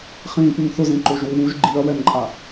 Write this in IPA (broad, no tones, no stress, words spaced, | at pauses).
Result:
χĩːpunθʊzẽ ǃoʒwɪwuʒ ɡ͡ǃiɐ̯wɛnǃʼa